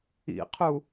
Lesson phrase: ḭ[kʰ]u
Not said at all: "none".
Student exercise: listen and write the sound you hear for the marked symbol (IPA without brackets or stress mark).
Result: qʰ